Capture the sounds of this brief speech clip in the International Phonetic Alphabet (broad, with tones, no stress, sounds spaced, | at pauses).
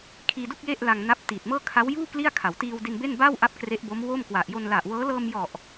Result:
kʰ iː˧ d u˥˩ k̚ j e˥˩ ʔ l a˧ ŋ n a˦˥ p̚ t iː˨˩ t̚ m ɤː˥˩ kʰ a˦˥ w j uː˥˩ k l i˥˩ a̯ kʰ a˩˦ w t iː˧ w d i˧ n b e˥˩ n b a˥˩ w ʔ a˥˩ p̚ k r e˦˥ ʔ b o˦˥ m w o˥˩ m k w a˨˩ ʔ j o˧ n l a˨˩ ʔ w ɤː˦˥ l ɤː˧ m j ɔ˨˩ ʔ